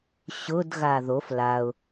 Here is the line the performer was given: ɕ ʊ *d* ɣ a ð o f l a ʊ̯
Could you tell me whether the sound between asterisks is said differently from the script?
no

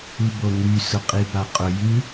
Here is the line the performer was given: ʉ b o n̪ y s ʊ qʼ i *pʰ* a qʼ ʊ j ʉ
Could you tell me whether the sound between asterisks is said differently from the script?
yes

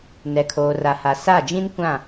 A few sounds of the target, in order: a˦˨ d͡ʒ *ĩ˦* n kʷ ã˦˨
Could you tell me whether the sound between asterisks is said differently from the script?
no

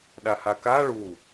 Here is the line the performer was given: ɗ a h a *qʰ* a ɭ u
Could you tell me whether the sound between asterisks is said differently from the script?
yes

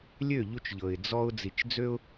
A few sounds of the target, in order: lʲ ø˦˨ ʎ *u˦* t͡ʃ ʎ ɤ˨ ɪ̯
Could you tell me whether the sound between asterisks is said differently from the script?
yes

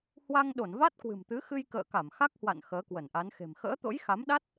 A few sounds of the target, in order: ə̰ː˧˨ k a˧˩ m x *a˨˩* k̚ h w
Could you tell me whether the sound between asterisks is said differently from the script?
yes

